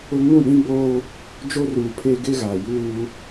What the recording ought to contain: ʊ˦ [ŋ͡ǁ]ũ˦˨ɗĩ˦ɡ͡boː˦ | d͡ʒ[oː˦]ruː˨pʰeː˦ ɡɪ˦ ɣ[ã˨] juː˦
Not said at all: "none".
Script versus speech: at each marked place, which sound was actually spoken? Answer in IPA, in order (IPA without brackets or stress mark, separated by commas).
ŋ, o˦, a˨